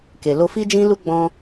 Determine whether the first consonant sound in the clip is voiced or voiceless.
voiceless